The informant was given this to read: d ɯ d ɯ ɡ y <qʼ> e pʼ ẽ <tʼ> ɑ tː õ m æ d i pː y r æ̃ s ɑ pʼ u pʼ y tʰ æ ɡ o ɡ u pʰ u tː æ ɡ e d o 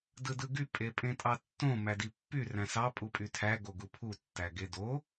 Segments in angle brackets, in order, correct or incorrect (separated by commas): incorrect, correct